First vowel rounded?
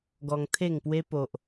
yes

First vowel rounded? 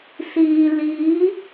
no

